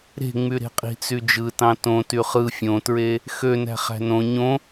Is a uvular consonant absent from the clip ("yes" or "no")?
no